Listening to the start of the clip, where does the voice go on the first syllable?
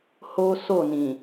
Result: high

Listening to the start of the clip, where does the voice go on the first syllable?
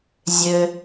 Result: low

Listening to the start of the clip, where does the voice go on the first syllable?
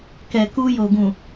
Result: low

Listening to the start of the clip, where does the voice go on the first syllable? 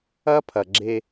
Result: high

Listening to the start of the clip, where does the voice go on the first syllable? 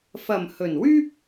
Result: low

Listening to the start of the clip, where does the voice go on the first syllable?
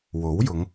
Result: rising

